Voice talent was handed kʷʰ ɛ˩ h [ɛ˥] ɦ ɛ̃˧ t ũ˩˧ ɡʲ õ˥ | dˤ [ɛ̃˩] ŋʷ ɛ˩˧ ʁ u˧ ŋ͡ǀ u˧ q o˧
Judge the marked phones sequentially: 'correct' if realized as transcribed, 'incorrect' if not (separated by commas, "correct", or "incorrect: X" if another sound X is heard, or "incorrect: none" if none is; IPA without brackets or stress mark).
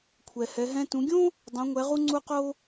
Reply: incorrect: ɛ˩˧, incorrect: ɛ̃˩˧